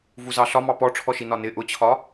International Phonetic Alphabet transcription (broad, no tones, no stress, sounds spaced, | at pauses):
v u z ɑ ɬ ɒ m ɑ p ɔ ʈ͡ʂʰ ɔ ʃ i n ɒ n ɪ ʔ ʊ t͡ɕʰ ɒ